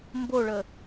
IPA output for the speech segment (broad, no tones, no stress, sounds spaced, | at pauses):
m b o ɭ ə